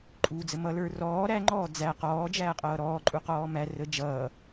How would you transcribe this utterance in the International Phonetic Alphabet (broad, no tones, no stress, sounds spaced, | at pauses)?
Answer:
ǃʼ uː d͡z ə m ʌ l ə˞ r ɔː ɾ æ ŋ͡ǃ ɔː d͡z æ q ɔː d͡ʒ æː qʼ ʌː ɾ ɔː ǃʼ u q ɔː m æ r ə d͡ʒ ʌː